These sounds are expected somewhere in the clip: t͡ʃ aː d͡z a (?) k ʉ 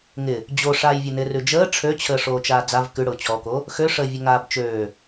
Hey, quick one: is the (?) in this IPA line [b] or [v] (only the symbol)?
v